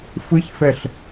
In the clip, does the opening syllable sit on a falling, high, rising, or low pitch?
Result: rising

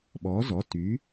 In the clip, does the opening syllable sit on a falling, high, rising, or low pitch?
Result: rising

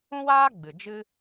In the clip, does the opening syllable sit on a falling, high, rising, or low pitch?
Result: high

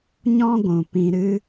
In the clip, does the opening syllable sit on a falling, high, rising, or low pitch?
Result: high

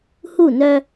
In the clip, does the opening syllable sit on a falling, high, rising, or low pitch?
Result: falling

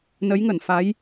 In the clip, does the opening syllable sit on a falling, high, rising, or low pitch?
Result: rising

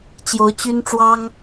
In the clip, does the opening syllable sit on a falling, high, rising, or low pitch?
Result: rising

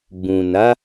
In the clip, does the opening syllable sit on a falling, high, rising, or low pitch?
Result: low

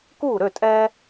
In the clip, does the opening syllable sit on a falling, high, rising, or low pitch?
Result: falling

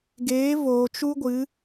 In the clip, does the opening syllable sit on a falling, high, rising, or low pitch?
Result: rising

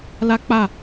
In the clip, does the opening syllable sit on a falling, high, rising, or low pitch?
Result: high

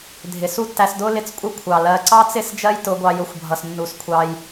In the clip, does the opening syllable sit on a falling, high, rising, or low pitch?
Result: low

